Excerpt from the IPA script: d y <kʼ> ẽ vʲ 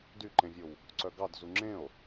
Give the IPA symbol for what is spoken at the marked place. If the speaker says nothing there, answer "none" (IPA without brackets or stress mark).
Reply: ǃ